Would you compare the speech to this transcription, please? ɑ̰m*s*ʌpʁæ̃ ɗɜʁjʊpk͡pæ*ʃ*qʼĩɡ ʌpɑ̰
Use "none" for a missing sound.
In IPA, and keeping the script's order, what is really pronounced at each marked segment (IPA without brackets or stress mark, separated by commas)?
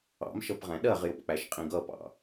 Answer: ʃ, ʃ